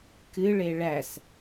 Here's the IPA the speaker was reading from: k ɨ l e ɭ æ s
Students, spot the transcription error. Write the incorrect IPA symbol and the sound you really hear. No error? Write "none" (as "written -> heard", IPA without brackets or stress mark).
l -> ɭ